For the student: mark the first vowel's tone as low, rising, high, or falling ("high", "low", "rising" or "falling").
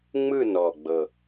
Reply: falling